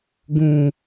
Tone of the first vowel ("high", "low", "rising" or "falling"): low